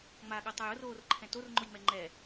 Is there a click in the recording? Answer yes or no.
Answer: yes